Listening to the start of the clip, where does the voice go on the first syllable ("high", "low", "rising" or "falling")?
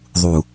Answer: low